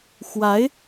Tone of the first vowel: rising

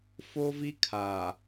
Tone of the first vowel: high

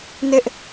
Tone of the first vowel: high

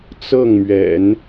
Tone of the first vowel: falling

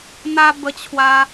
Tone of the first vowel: high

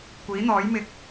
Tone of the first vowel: rising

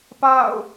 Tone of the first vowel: falling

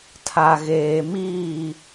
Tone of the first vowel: low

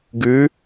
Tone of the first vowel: rising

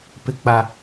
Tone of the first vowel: high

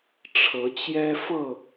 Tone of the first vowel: rising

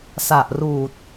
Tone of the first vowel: low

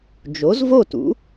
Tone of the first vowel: rising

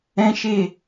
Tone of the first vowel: high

